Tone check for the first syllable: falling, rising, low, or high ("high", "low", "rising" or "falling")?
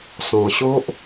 low